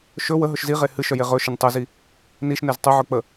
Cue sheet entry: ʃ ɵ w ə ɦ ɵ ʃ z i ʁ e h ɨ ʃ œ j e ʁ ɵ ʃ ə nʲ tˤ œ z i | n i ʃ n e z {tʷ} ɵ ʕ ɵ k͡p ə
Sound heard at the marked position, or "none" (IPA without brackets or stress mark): tˤ